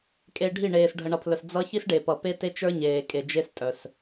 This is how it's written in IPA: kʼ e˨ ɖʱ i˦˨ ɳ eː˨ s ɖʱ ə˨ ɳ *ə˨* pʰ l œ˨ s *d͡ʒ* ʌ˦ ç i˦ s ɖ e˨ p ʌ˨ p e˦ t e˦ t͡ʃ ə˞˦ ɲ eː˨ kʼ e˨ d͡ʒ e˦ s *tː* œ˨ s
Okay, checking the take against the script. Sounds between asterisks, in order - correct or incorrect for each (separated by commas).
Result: incorrect, incorrect, incorrect